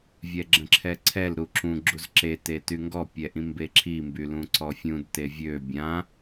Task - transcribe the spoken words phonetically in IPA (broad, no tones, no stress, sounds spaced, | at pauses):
vʲ ɛ ɡ͡ǁ ə̃ ǁʰ ɛ ǀʰ ɛ l ɾ u ǁ ũ ɡ͡ǁ u z ǁ e t e t y ŋ ɡ ɔ pʲ ɛ ʔ ĩ m b e ǁʰ i m b y l ũ ǀ ɔ fʲ ũ d t e vʲ ø bʲ ã